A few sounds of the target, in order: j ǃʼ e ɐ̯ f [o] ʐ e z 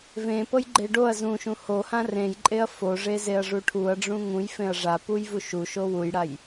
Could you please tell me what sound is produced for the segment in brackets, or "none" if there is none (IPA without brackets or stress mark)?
o